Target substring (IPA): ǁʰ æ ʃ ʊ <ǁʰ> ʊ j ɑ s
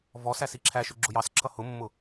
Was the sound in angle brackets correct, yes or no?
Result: no